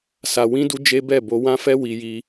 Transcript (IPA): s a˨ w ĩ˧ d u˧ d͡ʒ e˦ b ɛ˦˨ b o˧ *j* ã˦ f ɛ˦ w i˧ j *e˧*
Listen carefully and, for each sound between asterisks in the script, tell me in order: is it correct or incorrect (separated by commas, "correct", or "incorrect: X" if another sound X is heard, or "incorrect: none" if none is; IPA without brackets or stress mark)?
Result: incorrect: w, incorrect: i˧